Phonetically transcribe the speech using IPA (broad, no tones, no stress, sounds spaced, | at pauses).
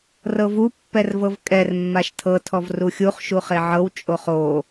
r ɤ v u pː ɛ r v ɤ v kʼ ɛ r mː a ʃ tʰ ɤ tʰ ɔ v r u xʲ u χ ʃ u χ e ʕ ɤ w t͡ʃʼ o χ o